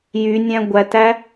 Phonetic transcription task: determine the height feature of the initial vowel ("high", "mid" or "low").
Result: high